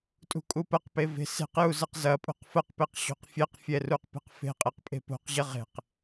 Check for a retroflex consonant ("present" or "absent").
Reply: absent